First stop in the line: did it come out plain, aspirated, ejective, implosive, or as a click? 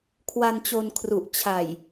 aspirated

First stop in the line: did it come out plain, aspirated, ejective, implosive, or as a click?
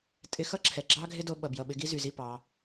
ejective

